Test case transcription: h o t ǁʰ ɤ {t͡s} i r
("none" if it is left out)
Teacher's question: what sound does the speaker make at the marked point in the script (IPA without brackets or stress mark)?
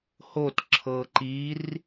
ǃ